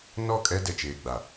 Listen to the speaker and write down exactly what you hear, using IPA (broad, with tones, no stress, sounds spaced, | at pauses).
n ɔ˦˨ kʼ ɛ˦ d ɛ˨ t͡ʃ eː˨ ɡ͡b a˨